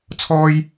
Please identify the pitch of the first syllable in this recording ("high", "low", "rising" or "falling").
high